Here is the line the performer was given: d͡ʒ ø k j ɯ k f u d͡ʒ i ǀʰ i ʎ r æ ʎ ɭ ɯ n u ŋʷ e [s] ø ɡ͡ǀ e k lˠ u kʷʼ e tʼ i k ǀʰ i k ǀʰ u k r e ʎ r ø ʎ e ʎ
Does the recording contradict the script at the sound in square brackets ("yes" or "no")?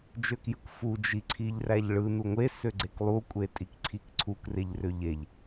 no